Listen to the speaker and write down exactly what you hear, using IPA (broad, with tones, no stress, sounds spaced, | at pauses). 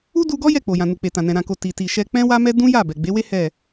u˦ d u˧ ɡ ɔ˦ j ɛ˦˨ k͡p o˨ j ã˨ n u˨ k͡p e˨ t ã˨ n ɛ̃˨ ɾ ã˨ k o˨ t i˨ t i˨ ʃ ɛ˧ k͡p ɛ̃˦ w a˦ m ɛ˦ d ũ˦ j a˦˨ b ɛ˨ ɡ͡b e˨˦ w e˦ h ɛ˦˨